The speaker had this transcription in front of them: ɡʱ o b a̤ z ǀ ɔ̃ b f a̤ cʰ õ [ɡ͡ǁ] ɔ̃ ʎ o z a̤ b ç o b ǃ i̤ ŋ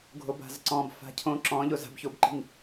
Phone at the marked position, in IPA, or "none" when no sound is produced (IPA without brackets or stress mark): ǁ